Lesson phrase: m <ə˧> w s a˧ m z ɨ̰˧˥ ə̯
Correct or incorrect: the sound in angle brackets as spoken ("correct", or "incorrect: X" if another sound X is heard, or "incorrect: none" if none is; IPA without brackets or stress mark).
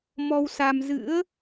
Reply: incorrect: ɔ˧